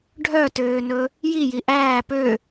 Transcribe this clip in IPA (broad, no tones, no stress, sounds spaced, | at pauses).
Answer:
ɖʱ œ t øː n ɵ | j i j i ʔ æː p ø